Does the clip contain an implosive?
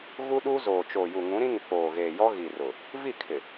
yes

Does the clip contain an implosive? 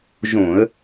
no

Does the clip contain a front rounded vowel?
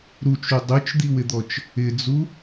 yes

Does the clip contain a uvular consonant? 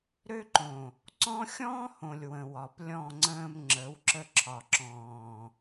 no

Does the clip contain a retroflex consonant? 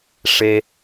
yes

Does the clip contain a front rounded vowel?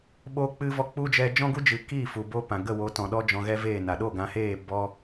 no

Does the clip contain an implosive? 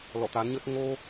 no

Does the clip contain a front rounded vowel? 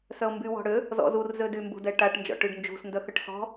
yes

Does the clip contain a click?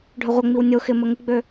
no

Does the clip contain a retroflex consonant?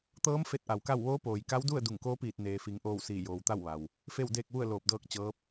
no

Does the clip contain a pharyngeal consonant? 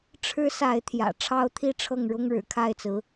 no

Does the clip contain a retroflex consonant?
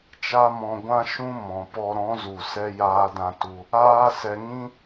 no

